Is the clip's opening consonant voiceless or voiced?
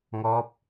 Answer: voiced